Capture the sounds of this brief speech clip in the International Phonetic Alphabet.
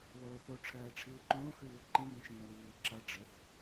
βoːθo ʈ͡ʂʰɜːʈ͡ʂʰiːǃõː xʉːwǃĩ bĩʃĩːwiː ǁʌ ɖ͡ʐɘθ

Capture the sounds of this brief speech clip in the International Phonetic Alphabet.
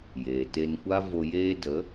jeː˨te˧nkʷa˦ vo˧jeː˦ də˨˦

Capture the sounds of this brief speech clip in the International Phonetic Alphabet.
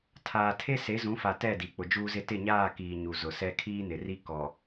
tʰaː˨tʰe˦ se˨˦zũ˨˦fa˨ tɛ˦˨di˨ k͡pʊ˨d͡ʒuː˦zɪ˦ tɪ˦˨ɲaː˦˨kiː˨ ɲu˨zʊ˨sɛ˦ kʰiː˦nɪ˨ri˦ kɔ˨

